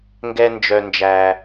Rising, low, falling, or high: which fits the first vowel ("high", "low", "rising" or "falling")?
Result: low